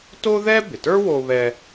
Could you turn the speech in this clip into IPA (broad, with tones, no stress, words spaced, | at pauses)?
to˥ðɛ˥bɪ˩tə˞˥ wo˦βɛ˦